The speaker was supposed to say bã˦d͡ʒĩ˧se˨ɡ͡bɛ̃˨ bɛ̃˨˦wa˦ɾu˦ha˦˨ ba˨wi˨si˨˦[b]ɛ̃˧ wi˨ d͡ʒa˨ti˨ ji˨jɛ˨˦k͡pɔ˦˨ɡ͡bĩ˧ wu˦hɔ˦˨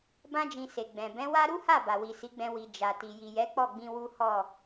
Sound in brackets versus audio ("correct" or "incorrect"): incorrect